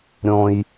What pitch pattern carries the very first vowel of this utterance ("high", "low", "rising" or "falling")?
high